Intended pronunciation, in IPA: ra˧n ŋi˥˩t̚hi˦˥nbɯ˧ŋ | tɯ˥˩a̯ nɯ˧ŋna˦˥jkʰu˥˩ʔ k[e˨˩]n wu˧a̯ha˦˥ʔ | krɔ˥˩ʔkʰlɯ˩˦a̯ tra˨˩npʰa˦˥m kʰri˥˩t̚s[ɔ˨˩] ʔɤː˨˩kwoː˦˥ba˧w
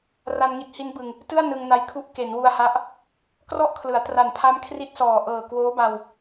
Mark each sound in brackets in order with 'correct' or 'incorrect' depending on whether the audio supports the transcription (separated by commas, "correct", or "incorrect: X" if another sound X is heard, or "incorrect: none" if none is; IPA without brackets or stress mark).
incorrect: e˩˦, incorrect: ɔː˨˩